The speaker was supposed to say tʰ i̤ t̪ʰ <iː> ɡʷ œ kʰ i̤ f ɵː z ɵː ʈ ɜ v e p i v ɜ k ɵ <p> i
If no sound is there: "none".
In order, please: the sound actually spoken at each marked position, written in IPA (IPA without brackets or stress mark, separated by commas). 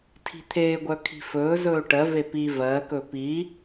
eː, p